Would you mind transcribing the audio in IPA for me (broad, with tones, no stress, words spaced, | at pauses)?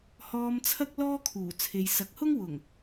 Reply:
hɔː˧mt͡sʰɐ˥k̚ lɔː˥kʰuː˨˩t͡sʰe˨jsɐ˨˥k̚ hʊ˥ŋwʊ˨˩ŋ